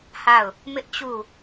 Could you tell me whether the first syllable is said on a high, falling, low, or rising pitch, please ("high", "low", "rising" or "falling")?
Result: falling